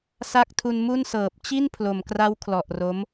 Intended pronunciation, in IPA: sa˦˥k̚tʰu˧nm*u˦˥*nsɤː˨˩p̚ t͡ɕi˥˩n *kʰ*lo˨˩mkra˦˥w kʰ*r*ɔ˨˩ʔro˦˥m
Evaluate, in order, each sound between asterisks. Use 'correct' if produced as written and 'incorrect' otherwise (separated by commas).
incorrect, incorrect, incorrect